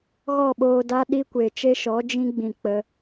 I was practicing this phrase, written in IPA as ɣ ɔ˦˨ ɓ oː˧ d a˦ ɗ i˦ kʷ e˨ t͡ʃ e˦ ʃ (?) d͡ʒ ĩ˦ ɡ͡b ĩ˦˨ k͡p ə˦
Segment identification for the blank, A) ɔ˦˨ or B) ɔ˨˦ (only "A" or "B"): B